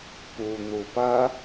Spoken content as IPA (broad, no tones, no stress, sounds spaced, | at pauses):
p u n̪ u p ɐ